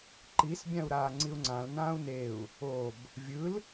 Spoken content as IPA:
ǃ i s bʲ ã u̯ ɾ aː ŋ͡ǀ i u̯ ŋ͡ǀ ã l n ãː u̯ n e u̯ | o b | vʲ ɯ l

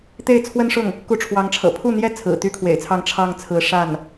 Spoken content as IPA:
t̪ e˥˩ ɪ̯ t͡sʰ w ə˥ n ʂ ʊ˥˩ ŋ | k u˧˥ ʈ͡ʂʰ w ɑ˧˥ ŋ ʈ͡ʂʰ ɤ̰˨˩ pʰ u˥˩ n̪ j ɛ˥ t͡sʰ ɹ̩˨˩ t̪ y˥ kʰ w ḛ˨˩ ɪ̯ t͡sʰ ɑ˥˧ ŋ ʈ͡ʂʰ ɑ˥˩ ŋ t͡sʰ ɹ̩˧˥ ʂ a˥˩ n

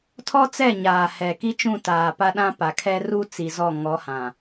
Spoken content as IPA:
tʰ ɔ˦ t͡s ɛ˦˨ ɲ aː˨ h ɛ˨ k i˦ t͡ʃ ũ˦˨ t aː˨ p a˦ ɗ ã˦ p a˨ kʰ ɛ˦ r u˦ t͡s i˨ z ɔ˦˨ ŋ ɔ˨˦ h ã˨

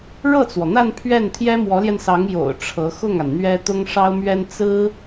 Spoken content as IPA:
ɻ ɤ˥˩ t͡s w ɔ˩ n̪ a˥˧ n pʰ ɥ ɛ˥˩ n t̪ʰ j ɛ˥ m w ɔ˧˥ l j ɛ˧ n s ɑ˧˥ ŋ j o̰˨˩ ʊ̯ ʈ͡ʂʰ ɤ˧˥ x ʊ˥˩ ŋ a˩ n n̪ ɥ ɛ˥ t̪ ʊ˥ ŋ ʂ ɑ˥ ʊ̯ m ɥ ɛ˥ n t͡s ɹ̩˥

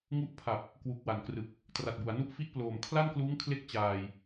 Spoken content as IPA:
ŋ u˦˥ ʔ pʰ a˨˩ p̚ | k w u˨˩ k̚ w a˩˦ n k r ɯ˨˩ k̚ | t r a˨˩ t̚ b u˩˦ a̯ n u˥˩ ʔ f i˥˩ ʔ p l oː˨˩ m kʰ l a˥˩ n k l uː˦˥ ŋ kʰ l e˦˥ k̚ t͡ɕ aː˧ j

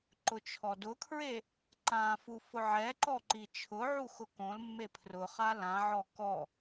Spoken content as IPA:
ǃ ʊ t͡ʃʰ ɔ d ʊ kʰ ɹ e | ǃ ã f u f ʊ ʕ ɛ ǃ ɔ ǃ i t͡ʃʰ ʊ ʕ u x ʊ k õ l mː e pʰ r ʊ χ a l ã ʕ ɔ k ɔ

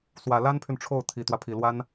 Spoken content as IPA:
s w ä˨˩ l a˥ n pʰ y˨ n ʈ͡ʂʰ o˥˩ ʊ̯ t̪ʰ i˨˩ t̪ w ä˦ pʰ i˨˩ l w a˥ n

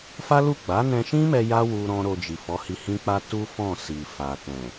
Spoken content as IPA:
f a˦ l u˦˨ ɡ͡b a˨˦ n ɛ̃˧ ʃ ĩ˦ m ɛ˧ j a˦ w u˧ ɾ ɔ̃˦ ɾ o˧ d͡ʒ i˨ f ɔ˨˦ h i˧ h ĩ˦ k͡p a˦ t u˦ f ɔ̃˦˨ s i˨ f a˨ t ɛ̃˨

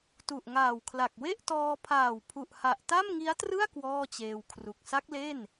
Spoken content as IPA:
t u˨˩ ʔ ŋ aː˨˩ w kʰ l a˨˩ k̚ w e˥˩ ʔ t ɔː˧ pʰ aː˨˩ w pʰ u˨˩ ʔ h a˨˩ ʔ t a˥˩ m ŋ i˦˥ a̯ t r ɯ˥˩ a̯ k w ɔː˥˩ t͡ɕ eː˧ w kʰ r u˨˩ k̚ s a˦˥ k̚ l e˥˩ n

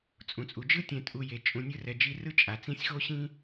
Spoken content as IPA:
t͡sʼ ũ˩ t͡sʼ u˩ d͡ʒ ɯ˥ tʲ ɛ̃˨ tʼ u˨ j e˩ t͡ʃʼ ũ˨ nʲ ɯ˦ r ɛ˨ d͡ʒ i˦ r ɯ˦ t͡ʃʼ a˩ t͡s ĩ˦ sʲ x o˥ ɕ ĩ˥

